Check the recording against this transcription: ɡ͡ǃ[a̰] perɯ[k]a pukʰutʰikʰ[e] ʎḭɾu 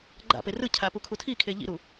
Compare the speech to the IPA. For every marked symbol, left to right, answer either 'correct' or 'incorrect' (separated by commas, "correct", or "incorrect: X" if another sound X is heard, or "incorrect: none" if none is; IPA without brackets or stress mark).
correct, incorrect: cʰ, correct